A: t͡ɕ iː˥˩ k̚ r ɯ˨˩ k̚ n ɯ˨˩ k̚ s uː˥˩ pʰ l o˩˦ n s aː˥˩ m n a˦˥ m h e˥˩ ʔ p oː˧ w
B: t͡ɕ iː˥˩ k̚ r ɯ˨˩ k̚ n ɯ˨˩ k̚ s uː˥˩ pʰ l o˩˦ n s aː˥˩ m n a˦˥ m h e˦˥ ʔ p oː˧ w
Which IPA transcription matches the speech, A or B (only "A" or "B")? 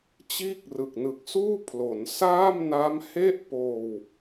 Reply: A